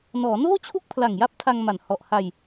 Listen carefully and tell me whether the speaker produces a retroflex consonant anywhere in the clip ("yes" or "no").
no